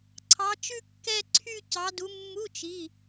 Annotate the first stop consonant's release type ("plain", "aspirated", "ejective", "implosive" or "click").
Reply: click